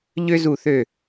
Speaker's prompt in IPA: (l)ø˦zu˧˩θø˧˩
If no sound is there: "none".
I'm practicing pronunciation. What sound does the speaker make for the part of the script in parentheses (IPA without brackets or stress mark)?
ʎ